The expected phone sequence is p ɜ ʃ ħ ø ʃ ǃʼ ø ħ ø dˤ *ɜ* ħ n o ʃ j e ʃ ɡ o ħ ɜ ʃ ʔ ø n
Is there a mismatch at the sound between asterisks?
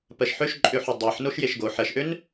no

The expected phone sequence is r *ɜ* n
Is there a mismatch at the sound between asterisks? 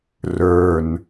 yes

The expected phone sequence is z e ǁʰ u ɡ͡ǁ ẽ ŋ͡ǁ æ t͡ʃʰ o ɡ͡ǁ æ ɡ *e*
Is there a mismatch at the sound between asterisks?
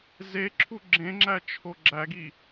yes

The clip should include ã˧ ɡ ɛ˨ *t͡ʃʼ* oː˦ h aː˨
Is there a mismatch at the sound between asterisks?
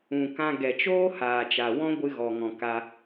yes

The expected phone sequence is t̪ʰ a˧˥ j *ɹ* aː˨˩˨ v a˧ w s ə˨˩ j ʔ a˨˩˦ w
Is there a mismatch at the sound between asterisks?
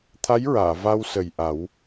no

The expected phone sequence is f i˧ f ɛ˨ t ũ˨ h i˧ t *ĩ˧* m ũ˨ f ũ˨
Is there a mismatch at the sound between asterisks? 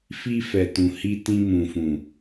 no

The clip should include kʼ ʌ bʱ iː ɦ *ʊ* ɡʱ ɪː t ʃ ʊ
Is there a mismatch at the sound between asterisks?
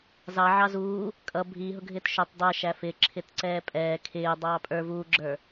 no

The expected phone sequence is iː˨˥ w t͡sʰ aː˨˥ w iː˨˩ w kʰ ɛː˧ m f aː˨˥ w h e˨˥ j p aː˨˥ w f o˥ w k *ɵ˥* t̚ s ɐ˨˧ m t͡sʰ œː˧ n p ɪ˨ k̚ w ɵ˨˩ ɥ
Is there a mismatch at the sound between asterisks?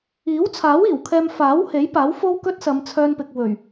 no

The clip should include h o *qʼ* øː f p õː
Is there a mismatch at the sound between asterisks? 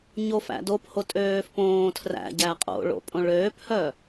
yes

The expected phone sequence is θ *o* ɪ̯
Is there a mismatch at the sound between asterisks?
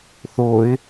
no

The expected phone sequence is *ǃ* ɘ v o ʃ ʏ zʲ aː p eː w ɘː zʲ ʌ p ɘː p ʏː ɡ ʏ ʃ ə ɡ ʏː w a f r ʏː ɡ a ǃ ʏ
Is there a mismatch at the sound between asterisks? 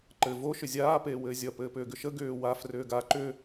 no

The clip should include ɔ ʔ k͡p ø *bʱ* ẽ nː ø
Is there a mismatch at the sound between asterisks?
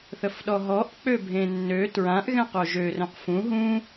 no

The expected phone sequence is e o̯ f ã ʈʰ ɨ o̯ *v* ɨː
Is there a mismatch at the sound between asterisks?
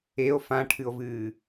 no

